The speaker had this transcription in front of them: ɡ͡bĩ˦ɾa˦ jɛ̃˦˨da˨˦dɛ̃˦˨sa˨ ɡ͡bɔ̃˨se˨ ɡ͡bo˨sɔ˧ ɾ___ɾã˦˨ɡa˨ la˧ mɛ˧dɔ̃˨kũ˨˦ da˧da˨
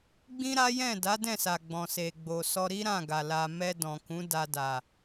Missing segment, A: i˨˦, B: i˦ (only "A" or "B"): B